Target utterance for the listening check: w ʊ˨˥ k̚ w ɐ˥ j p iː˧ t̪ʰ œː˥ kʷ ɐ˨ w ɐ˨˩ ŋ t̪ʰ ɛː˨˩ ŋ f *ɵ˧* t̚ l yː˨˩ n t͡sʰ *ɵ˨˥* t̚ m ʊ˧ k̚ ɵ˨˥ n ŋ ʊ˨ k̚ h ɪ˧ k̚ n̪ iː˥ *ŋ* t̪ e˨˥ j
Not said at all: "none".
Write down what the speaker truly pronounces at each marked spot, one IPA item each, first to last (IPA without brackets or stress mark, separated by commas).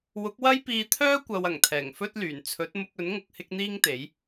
ɵ˥, ɵ˨˥, ŋ